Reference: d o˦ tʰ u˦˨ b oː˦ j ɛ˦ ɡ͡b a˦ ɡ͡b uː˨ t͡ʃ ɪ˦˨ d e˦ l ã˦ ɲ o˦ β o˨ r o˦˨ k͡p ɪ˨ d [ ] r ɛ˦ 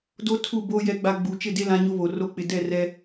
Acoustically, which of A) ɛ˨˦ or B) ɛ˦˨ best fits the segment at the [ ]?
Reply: B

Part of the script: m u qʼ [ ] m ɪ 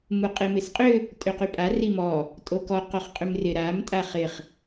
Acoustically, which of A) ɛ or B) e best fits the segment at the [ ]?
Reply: B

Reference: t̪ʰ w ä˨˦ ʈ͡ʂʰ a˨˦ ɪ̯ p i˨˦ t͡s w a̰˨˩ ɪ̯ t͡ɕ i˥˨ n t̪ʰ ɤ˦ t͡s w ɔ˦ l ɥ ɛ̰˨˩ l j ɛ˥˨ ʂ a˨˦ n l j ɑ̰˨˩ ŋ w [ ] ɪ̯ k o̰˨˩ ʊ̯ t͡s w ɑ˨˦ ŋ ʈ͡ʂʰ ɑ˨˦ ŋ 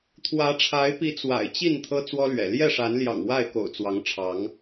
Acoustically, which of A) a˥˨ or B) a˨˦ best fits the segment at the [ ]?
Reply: A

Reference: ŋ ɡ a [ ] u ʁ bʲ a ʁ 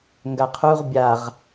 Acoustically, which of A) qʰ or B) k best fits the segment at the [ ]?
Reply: A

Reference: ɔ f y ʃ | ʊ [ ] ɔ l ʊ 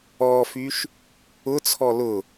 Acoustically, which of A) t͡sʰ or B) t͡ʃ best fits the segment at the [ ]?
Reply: A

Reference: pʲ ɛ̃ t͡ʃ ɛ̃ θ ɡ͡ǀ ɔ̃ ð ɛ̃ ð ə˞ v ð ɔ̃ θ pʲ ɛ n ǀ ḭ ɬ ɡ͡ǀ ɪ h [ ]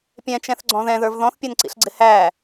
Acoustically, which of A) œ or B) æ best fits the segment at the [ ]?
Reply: B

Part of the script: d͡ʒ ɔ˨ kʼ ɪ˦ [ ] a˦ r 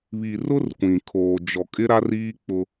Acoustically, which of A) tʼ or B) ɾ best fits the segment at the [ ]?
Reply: B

